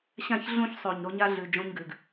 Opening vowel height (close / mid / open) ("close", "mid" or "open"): open